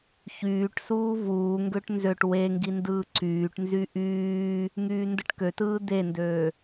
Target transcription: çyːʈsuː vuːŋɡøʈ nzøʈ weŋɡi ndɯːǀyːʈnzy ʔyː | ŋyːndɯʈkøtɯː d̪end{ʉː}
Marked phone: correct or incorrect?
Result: incorrect